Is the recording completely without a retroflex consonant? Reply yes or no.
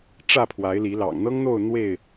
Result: no